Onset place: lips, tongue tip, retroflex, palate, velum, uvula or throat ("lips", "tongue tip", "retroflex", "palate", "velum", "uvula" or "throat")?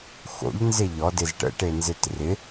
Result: velum